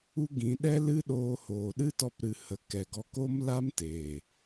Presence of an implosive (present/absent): present